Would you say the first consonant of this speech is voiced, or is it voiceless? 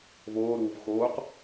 voiced